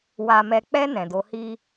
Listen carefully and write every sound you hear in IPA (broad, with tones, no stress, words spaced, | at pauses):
wa˨mɛ˨k͡pɛ˧ nɛ̃˨do˨˦hi˦